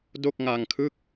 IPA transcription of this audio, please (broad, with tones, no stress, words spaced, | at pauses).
do˥˩k̚ŋa˧ŋkʰɯ˥˩k̚